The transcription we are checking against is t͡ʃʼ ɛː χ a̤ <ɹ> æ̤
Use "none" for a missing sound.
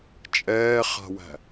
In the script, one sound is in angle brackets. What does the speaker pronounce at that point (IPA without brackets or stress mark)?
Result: w